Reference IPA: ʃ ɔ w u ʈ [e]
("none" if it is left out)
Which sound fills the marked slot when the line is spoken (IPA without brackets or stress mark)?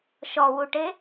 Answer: e